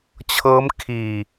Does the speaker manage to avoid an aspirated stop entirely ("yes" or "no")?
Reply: no